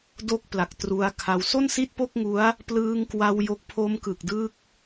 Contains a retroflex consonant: no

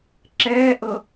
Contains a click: yes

